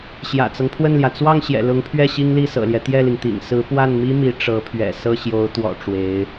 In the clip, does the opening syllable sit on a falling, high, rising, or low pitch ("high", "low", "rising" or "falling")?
low